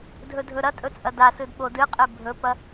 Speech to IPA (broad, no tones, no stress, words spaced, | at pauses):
dʱɵdʱɵɾɐtʼɵ t͡sʼɐdasɨd ɓodɨqʼe bʱɵpɐ